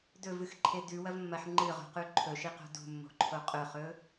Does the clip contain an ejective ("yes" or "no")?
yes